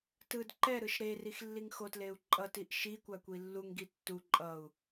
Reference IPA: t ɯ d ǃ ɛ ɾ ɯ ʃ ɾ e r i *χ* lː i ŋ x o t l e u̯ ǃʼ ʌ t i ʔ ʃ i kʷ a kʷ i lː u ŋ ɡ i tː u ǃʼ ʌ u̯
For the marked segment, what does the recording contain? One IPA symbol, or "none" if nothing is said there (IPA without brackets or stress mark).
x